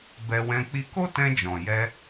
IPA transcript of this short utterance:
b ɛ˧ w ɛ̃˧ k͡p i˧ k o˦ t ɛ̃˧ d͡ʒ ɔ̃˨ j ɛ˧

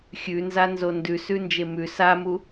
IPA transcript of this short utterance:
xʲ ʉ n z a n z o n d ʉ s ʉ n d͡ʒ e m ʉ s a m u

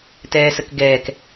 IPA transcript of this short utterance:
t ɛː s ə k ɡ ɛː k

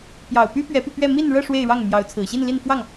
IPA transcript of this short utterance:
p j ɑ˨˩ ʊ̯ p y˥ p ɥ ɛ˧˥ p y˧ p ɥ ɛ˥˧ m i˥˧ n ɻ ɤ˥˧ ʂ w e˥˧ ɪ̯ ɻ ɑ˥˩ ŋ m j ɑ˧˥ ʊ̯ t͡sʰ ɹ̩˨˩ ɕ i˥˧ n l i˥˧ n f w ɑ˥˩ ŋ

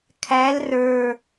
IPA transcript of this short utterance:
kʰ æ l r ə˞

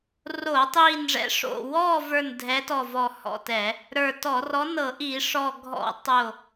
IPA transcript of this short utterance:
r o˧˩˧ tˤ iː˧˩ n ʐ ɛ̰˨˥ ʂ o̰˧˩ w ɔː˥˨ v ə˞˧˩ n dʱ ɛ˨˥ t ɔ˧˩ v ɔ˧˩ h ɔ̰˧˩ t ɛ˧˩˧ | ɾ ə˞˧˩ t ɔ˧˩˧ r ɔ˨˥ n ɤ˧˩˧ ʔ i˧˩˧ ʂ ɔ˧˩ ɡʱ ɔ̰˧˩˧ tˤ o˧˩

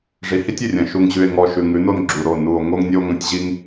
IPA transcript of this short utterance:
ʐ i˨ h i˦ tʲ ʉ˨ rʲ ɐ̃˨ ʃ u˨ ŋ ʑ ʉ˨ e̯ ŋ ɔ˨ ʃ ʉ˨ ŋ ʉ˨˦ n o˦ n ɡ͡ǁ u˨ ɾ o˦˨ n u˨ o̯ ŋ o˦ ŋ nʲ o˦ ŋ ɐ̃˦ tʲ ʑ i˦ ŋ

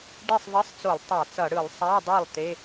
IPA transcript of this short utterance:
ɖ e˥˧ sˤ ðˤ i˧˥˧ sˤ t͡s o˧˩˧ lˠ tˤ a˧˩˧ t͡s ʌ˧˩˧ ɽ ɯ˧˩˧ lˠ sˤ a˧˥˧ dˤ i˥˩ lˠ t̪ e˧˥˧

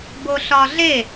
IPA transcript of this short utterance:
b o ɬ ɒ ɮ e

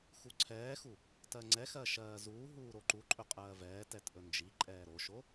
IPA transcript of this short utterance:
x u ǀʰ ɛː x u | t ɜ ŋ͡ǀ ɛ x ɜ ʃ ɜː z uː ɦ uː ɾ o ǃ u ǃʼ ɵ qʼ ɜː v ɛː t ɛ t ʔ ɵ n d͡ʒ i ǃʼ ɛː ɾ o ʃ o

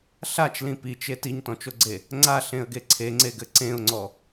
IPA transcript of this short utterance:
ɬ a t͡ʃ l ĩ p i t͡ʃ e t i ɲ t ɔ̃ t͡ʃ o ɡ͡ǀ e | ŋ͡ǀ a ɬ ẽ ə̯ ɡ e ǀʰ e ŋ͡ǀ e ɡ ɘ ǀ ẽ ʊ̯ ŋ͡ǀ ɔ

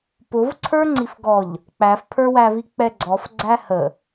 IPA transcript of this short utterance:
p ʊ v ǀʰ ə˞ ŋ͡ǀ i f ɡ ɔ ʎ | k͡p æ f pʰ ə˞ w æ v i k͡p ɛ ɡ͡ǀ ɔ f ɡ͡ǀ æ h ə

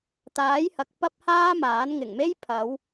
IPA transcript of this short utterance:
t̪ aː˨˥ j h ɐ˨˥ k̚ p ɐ˥ p̚ h aː˥ m aː˨˥ n ŋ ɪ˨˩ ŋ m e˥ j pʰ ɐ˨˧ w

